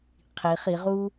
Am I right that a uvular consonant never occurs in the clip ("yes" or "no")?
no